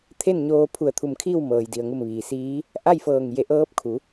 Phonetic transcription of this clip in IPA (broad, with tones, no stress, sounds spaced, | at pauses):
t̪ʰ e˥˨ n ɲ oː˧ pʰ u˧˩ ə̯ t̪ʰ u˧˩ m kʰ iː˥˨ w m ɤː˩ j d i˩ ə̯ ŋ u˧˩ m ʋ iː˩ s iː˧˥ | ʔ a˥˨ j f ɤː˧˩ ŋ j e˧˩ ʔ ɤː˧˥ p̚ kʰ u˩˧